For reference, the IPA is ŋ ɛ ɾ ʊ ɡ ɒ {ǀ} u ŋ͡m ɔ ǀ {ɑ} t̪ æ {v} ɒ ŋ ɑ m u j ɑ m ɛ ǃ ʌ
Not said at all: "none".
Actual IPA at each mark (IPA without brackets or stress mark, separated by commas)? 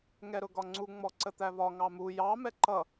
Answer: ŋ͡ǀ, ə, v